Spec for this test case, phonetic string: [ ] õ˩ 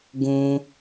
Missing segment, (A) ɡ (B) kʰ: A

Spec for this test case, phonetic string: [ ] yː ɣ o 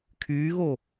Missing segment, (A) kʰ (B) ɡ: A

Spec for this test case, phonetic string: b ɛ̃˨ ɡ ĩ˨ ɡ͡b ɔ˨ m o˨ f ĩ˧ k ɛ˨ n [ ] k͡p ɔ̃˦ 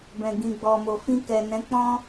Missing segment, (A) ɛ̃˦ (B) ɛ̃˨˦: B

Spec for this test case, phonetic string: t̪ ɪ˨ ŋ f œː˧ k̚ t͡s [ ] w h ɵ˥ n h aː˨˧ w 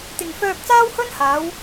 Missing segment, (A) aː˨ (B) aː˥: B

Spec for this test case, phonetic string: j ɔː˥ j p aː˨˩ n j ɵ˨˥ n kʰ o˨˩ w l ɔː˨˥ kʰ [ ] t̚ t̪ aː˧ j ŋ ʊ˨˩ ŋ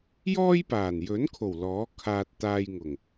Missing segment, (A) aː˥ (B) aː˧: B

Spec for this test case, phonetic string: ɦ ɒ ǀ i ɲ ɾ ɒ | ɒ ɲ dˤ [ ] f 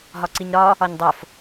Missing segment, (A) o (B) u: A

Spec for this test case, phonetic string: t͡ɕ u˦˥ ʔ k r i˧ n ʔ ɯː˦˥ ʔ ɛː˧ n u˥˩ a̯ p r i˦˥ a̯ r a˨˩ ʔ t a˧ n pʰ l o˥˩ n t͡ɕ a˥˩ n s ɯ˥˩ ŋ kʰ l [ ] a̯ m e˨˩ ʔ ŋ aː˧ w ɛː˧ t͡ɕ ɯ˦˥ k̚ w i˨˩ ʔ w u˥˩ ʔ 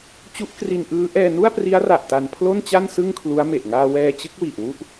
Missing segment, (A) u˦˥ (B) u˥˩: A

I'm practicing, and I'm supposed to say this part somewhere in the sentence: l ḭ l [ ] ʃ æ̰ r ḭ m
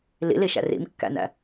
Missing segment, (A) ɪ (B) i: B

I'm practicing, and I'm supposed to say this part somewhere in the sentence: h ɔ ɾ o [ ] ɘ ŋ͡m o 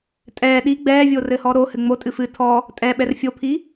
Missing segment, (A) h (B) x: A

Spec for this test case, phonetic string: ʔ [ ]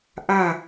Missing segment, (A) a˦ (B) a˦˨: B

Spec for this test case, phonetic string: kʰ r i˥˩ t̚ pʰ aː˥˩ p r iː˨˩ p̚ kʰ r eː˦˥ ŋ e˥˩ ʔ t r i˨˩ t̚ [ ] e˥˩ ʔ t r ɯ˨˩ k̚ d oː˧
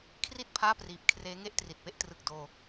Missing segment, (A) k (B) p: B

